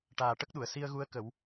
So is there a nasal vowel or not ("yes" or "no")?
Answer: no